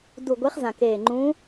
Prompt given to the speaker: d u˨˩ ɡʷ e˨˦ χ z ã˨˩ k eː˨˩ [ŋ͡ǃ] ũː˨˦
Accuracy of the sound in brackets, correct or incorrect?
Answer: correct